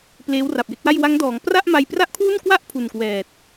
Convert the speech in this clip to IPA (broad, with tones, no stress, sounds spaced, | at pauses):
p l eː˦˥ w r a˨˩ p̚ j e˦˥ k̚ w a˥˩ j w a˦˥ ŋ d ɔː˩˦ ŋ p r a˥˩ ʔ m a˧ j p r a˥˩ ʔ kʰ w u˥˩ n k w a˥˩ ʔ pʰ u˨˩ n k w ɛː˨˩ t̚